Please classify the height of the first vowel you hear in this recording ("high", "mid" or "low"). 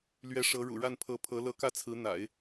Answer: mid